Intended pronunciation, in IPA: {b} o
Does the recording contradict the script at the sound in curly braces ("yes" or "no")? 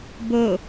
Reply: no